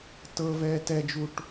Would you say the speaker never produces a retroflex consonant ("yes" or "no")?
no